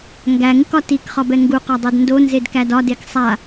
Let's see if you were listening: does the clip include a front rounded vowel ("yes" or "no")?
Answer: no